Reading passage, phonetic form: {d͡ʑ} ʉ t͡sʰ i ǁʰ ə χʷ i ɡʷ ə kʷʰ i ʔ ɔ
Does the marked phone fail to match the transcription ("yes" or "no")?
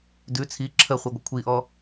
yes